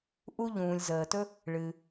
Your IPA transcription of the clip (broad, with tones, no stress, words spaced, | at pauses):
ʔu˥ʎũː˩lʲ zəː˩tɵ˥ | ɭɨ˩